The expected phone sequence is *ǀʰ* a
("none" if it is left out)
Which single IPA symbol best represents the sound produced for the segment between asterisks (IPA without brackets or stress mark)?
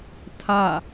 tʰ